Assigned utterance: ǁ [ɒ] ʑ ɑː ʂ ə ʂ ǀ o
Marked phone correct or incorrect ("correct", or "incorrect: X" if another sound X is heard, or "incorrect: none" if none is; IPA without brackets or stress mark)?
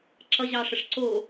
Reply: incorrect: ʌ